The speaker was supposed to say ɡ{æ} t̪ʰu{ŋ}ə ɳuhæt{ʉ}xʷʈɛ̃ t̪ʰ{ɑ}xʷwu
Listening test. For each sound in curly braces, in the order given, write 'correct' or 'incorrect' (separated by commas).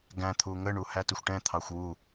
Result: incorrect, correct, incorrect, correct